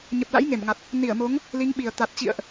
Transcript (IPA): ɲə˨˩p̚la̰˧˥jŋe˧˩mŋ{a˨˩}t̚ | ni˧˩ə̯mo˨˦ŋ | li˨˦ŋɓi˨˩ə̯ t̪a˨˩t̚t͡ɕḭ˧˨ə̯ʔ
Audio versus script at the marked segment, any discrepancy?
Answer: no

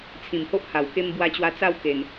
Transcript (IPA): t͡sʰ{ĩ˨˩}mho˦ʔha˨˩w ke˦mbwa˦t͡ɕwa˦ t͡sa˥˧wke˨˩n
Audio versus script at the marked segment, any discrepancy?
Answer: no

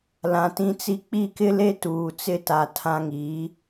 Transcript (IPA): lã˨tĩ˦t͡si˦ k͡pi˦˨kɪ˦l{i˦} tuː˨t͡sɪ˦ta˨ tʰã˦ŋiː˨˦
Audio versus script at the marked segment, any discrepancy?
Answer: yes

